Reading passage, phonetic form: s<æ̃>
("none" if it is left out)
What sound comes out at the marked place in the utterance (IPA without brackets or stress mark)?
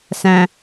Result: æ̃